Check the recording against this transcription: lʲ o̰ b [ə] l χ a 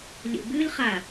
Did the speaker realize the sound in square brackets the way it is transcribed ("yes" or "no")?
no